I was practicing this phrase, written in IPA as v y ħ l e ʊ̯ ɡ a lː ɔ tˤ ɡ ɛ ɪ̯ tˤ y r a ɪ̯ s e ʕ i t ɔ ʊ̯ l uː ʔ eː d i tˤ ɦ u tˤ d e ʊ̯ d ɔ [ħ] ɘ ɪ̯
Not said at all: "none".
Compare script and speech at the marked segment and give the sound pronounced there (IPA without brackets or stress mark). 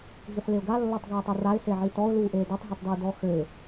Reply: x